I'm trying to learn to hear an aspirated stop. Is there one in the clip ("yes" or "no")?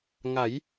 no